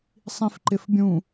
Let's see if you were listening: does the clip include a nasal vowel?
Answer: yes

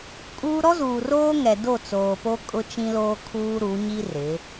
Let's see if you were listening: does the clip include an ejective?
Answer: yes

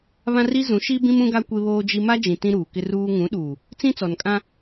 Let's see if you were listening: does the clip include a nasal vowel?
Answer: yes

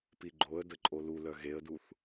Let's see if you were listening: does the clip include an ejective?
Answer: yes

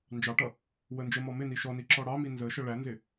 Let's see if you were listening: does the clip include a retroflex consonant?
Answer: yes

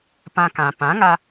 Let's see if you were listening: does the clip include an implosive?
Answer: no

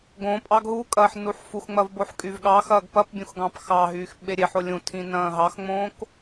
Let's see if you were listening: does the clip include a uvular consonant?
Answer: no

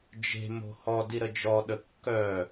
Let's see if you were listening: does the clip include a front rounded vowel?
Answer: yes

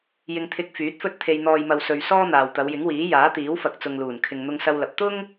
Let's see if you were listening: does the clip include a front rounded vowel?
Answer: yes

